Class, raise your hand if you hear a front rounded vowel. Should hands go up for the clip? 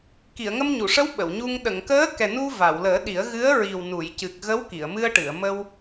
no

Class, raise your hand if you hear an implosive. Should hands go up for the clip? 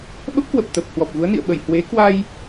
yes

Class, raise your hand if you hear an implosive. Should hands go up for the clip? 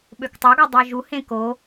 yes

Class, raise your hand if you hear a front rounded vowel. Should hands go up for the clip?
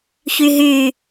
yes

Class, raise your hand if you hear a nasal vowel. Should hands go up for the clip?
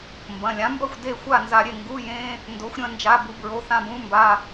yes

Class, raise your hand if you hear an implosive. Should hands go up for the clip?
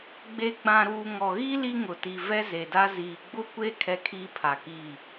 no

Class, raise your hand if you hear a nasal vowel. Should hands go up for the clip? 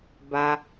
no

